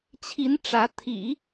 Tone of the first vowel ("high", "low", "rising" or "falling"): rising